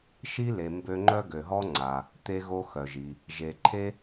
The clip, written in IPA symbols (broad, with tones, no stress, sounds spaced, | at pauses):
ʃ i˥ l e˩ m b ø˧ ŋ͡ǃ œ˥ ɡ ø˩ ɦ ɔ˥ ŋ͡ǀ a˩ | t̪ e˧ ɣ o˧ x œ˩ ʒ i˩ | ʒ e˩ ǃʰ e˥